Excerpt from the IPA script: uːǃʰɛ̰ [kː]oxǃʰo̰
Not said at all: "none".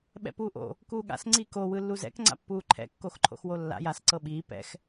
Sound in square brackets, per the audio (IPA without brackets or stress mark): kː